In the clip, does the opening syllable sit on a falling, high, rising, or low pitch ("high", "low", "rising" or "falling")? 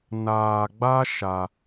low